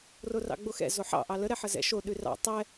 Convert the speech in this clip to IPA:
r o r ɑ̰ ɡ͡b o x ɛ̰ z o ħ ɑ̰ ʔ ɑ l ə ɾ ɛ ħ ə z ɛ̰ ʃ o ɗ ʉ r ɑ̰ tˤ ɛ

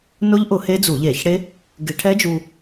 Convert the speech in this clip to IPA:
n ʊ˦˥ ʎ ʔ ʊ˧˩˧ h e˦˥ d͡z u˧˩˧ ʎ e˧˩˧ ç ɽ e˦˥ | ɡ ɪ˧˩˧ ʈʰ ɛ˦˥ d͡ʒ u˧

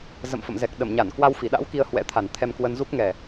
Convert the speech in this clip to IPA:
z ə̰˧˨ m f ə̰˧˨ m z ɛ˨˩ k̚ ɗ ə˧˩ m ɲ a˧˩ n k w a˧ w f i˧˩ ɗ a̰˧˥ w k i˧ ə̯ h w ɛ̰˧˥ t̪ʰ a˨˩ n t̪ʰ ɛ˧ m k w ə˧ n z u˦˥ k̚ ŋ ɛ˨˩

